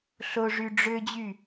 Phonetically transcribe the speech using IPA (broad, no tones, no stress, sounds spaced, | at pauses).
ɬ o ʐ y ɖ͡ʐ ø d͡ʑ y